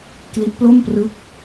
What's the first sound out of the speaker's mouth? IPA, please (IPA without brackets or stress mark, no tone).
k